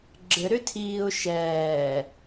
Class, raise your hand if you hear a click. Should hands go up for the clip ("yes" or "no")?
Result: yes